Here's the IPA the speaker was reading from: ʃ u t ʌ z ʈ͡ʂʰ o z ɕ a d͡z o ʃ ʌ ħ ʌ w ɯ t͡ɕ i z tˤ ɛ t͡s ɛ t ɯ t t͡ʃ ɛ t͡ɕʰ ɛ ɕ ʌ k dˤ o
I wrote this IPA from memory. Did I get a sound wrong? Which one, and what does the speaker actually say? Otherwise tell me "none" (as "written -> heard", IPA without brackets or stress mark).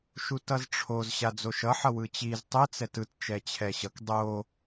none